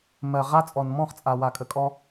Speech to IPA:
mɜ˨ʁa˦ t͡sʼɔ˨nmɔ̃˦˨χt͡sʼa˨ wa˨kʼə˨kʼɔ˧

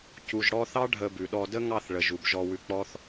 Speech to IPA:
cu˨ʒɽɔ˧θɑ˦ ɖʱə˧bʉ˨ɗɔ˧ də˦ŋɑ˦˨θɭə˨ ʒu˨bʒɔ˧wʉ˧k͡pɔ˦θ

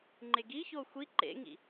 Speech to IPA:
ŋ͡ǃeɡiçoː xʷi ǃḛŋḭ

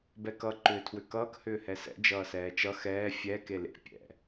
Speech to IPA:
bɛkʌ ǃʏːtʰwʏkʌːk hʏːhɛsɛ̰ d͡ʒʌːsɛːt͡ʃʌ xɛː fʲɛ kelḛ pʲɛ̰

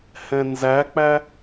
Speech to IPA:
hɛ̃nzæk͡pæ

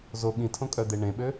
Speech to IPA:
zo ɠĩtʰõkʼœd̪e ɳẽɓø

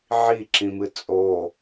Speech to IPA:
ʕiǁĩmɨ t͡sʼo

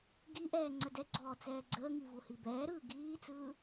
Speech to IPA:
ɡiʔɛː ŋ͡ǀədɛɡ͡ǀɔː t͡sɛːɡ͡ǀəːŋi vuhibɛːɾɯː ɡiːt͡sɯː

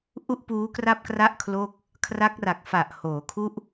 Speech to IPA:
ʔu˥˩ʔpuː˦˥kra˥˩p̚kra˥˩ʔ kʰloː˥˩k̚ | kʰra˦˥k̚ra˨˩k̚fa˨˩ʔ hoː˩˦kʰu˥˩ʔ

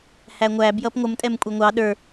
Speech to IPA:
hæŋʷæ bjʌpŋʷəm tʼɛmkʷʼɛŋʷɑ ɗə˞

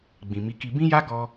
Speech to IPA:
ɡ͡bĩ˨ mi˨˦ki˧ bĩ˦ja˦ ɡɔ˧

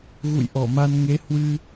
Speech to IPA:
ɣṵ˧˨jʔɔ˧˩ma˧n ŋe˨˦ hwɨ˧

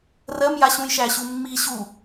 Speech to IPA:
rɜmjaɕũjʃæ ɕumːi ɕu

